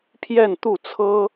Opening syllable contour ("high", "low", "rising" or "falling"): falling